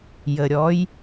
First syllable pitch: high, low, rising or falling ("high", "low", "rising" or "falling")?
low